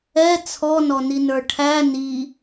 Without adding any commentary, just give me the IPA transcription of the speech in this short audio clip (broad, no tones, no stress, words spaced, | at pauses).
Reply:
ɛ t͡sʰɔnɔninə˞ ʈʰæ ni